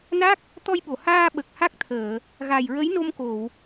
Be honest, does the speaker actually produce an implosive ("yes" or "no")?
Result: yes